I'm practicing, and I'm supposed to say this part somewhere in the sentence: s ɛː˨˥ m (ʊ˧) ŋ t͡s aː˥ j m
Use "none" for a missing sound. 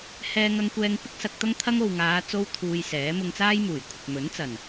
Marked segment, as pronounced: ʊ˧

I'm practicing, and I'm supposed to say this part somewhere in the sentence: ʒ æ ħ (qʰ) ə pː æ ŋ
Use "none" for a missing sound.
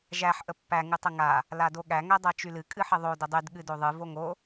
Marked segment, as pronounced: ʔ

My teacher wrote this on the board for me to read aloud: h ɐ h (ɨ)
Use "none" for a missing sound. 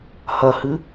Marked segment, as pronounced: ɨ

